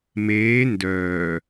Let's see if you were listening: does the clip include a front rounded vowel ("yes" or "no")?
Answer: yes